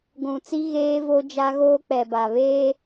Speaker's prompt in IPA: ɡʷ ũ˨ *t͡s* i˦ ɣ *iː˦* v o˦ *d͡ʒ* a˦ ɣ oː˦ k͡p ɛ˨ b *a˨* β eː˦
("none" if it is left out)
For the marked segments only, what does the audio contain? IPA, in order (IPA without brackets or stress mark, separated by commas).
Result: t͡s, eː˦, d͡ʒ, a˨